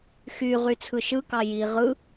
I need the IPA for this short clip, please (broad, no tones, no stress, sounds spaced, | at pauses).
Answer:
x y ʁ y t͡sʰ ɯ ʃ ɯ k ɑ j i ʁ ɯ